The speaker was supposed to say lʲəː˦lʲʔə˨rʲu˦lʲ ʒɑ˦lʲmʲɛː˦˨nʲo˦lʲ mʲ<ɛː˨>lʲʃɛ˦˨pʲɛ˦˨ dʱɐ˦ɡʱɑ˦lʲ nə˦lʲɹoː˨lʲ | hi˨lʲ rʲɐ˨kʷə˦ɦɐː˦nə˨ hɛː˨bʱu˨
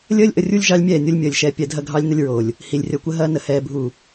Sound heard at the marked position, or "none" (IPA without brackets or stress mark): əː˨